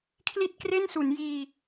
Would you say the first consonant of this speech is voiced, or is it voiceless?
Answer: voiceless